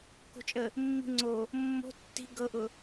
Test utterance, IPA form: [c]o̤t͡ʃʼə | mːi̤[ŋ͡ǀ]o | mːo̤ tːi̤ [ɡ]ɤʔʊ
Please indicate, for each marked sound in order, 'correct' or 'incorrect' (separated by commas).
incorrect, correct, correct